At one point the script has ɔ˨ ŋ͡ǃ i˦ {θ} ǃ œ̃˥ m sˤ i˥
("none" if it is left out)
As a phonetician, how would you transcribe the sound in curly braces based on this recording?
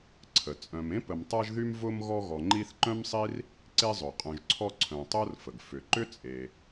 θ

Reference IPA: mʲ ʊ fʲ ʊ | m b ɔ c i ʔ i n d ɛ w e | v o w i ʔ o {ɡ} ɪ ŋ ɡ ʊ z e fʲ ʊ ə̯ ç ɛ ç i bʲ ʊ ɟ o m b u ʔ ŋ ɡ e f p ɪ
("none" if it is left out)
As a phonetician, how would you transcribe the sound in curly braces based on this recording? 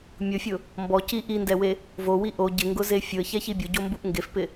ɟ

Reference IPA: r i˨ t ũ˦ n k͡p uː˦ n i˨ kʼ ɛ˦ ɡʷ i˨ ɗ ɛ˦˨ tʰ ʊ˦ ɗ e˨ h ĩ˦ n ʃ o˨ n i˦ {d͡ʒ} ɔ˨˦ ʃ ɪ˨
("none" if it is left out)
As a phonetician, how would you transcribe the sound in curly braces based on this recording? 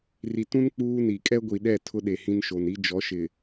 d͡ʒ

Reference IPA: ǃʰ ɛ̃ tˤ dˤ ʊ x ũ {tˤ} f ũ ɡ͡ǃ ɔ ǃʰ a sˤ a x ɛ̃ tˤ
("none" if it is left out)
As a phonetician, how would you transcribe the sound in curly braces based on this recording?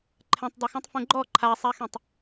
tˤ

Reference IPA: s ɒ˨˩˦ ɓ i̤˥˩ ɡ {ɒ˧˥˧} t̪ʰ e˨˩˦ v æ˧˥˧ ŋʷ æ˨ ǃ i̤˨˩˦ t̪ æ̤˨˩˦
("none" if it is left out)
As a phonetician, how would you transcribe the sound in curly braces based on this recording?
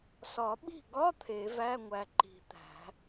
ɒ˧˥˧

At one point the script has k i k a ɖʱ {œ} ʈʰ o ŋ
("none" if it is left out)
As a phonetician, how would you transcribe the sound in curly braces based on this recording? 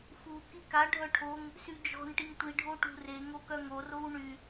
œ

